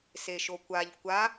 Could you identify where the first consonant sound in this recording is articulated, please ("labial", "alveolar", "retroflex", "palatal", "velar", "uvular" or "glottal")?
alveolar